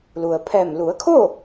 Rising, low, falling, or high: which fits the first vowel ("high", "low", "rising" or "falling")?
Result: low